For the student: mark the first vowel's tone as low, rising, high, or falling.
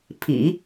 low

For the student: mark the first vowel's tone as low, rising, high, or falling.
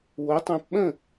rising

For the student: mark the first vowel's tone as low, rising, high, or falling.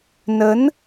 rising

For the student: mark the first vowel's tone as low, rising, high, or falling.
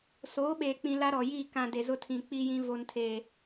rising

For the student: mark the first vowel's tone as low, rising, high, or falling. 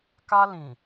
high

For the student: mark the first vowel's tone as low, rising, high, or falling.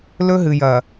high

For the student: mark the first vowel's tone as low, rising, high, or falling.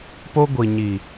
high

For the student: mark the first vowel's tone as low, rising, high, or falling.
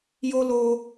high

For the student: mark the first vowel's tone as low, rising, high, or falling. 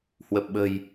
low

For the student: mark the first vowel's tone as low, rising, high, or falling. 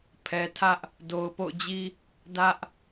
low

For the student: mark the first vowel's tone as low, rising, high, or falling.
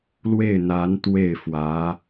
falling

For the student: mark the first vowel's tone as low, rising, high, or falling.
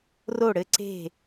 falling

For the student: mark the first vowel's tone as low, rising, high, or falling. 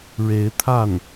rising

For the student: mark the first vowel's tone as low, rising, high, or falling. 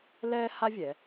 high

